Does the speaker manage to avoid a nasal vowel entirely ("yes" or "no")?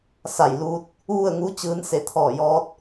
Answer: yes